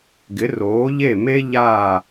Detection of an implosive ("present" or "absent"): absent